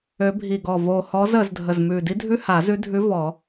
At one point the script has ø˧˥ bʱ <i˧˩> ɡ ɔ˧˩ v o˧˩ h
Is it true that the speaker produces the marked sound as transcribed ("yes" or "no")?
yes